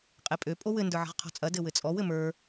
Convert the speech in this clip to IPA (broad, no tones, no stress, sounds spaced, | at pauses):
qʼ e pʼ ø pʼ o w ɘ n d ə˞ ʕ ə̤ ʁ qʰ ɔ̤ t͡sʼ ɐ d ɘ w ɘ t͡sʼ ɔ w ɘ m ə˞